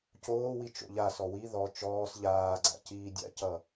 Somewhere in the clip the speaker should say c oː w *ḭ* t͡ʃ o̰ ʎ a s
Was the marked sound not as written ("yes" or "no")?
yes